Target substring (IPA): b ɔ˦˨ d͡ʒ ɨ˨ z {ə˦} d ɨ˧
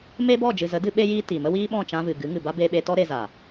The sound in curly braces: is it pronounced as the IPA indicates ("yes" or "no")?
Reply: no